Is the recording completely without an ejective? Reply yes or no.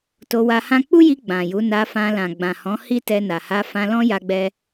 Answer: yes